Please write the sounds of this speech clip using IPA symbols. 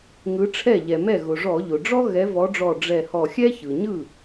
ŋ ɯ˨˦ ʈ͡ʂʰ ɛ˥˩ ʎ ɛ˩ m ɛ˥˩ ɣ ʊ˩ ʐ ɔ˧˩˧ ʎ ʊ˩ ɖ͡ʐ ɔ˥ ɣ ɛ˨˦ v ɔ˨˦ ɖ͡ʐ ɔ˧˩ ɖ͡ʐ ɛ˧˩ h ɔ˧˩ xʲ ɛ˥ ç ɯ˩ ɲ ɯ˥˩

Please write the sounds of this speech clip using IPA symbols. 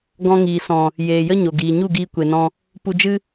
ɡ ɔ̃˧ ŋ iː˨ s ɔ̃˨ | j eː˨ j ə˦ ɲ o˨ ɡ iː˨ ɲ u˦˨ ɡ iː˧ kʷ e˨ n ɔ̃˧ | p u˧ d͡ʒ ɨ˦

